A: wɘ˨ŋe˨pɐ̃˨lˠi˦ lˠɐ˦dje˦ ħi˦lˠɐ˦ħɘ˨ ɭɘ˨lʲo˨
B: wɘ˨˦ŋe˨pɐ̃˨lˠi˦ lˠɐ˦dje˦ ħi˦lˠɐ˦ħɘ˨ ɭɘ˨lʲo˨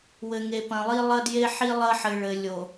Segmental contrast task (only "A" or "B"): A